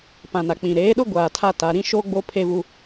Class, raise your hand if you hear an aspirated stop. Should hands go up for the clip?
yes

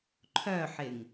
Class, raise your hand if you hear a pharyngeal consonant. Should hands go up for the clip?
yes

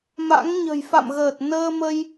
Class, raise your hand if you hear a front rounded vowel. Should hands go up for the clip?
no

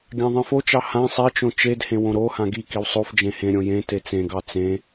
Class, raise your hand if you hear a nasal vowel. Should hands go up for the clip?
yes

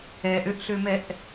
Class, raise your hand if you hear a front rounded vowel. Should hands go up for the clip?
yes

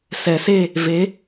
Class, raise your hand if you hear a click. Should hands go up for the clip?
no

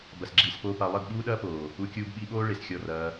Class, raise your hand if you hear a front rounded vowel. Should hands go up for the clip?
no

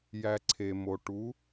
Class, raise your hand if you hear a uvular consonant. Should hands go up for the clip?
no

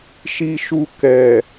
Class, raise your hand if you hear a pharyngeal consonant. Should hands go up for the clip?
no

